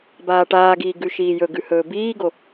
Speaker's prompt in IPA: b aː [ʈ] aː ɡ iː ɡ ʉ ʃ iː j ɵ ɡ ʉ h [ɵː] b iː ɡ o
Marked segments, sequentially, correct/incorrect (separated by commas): correct, correct